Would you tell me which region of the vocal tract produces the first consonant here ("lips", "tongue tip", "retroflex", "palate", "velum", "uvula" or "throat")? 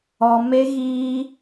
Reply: lips